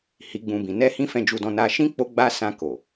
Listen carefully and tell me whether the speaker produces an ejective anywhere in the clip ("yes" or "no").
no